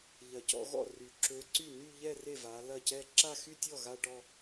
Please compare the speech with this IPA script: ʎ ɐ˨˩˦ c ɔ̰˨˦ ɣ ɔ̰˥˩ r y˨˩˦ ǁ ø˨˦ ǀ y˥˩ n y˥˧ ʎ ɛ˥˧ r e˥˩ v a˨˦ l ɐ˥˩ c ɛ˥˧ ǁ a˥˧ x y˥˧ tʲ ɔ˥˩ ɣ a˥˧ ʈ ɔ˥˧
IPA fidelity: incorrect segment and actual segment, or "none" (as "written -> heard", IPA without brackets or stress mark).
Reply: none